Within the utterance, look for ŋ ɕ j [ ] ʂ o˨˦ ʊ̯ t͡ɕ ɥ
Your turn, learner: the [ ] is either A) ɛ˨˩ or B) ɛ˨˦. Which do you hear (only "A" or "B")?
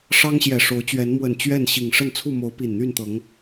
A